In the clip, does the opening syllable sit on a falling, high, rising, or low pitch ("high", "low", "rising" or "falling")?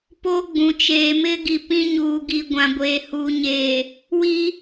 high